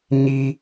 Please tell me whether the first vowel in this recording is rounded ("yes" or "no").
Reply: no